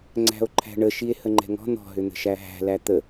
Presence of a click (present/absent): present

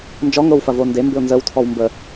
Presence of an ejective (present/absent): absent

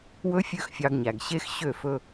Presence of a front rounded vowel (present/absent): present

